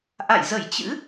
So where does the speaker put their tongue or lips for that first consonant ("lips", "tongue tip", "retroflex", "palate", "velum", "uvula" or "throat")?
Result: throat